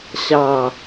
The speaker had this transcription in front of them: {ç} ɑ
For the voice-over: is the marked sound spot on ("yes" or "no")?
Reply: no